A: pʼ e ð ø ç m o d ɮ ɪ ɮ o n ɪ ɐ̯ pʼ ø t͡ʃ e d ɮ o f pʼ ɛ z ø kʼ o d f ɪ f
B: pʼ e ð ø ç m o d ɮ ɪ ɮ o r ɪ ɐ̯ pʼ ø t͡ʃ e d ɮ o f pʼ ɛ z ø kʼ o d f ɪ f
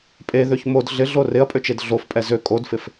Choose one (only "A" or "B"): B